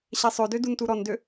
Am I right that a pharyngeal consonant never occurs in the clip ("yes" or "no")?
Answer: yes